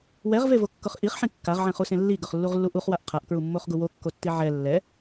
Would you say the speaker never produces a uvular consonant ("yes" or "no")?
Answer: no